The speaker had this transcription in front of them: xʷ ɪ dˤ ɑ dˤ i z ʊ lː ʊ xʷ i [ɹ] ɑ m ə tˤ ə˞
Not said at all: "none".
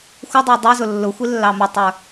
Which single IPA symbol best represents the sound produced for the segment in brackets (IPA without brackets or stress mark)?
lː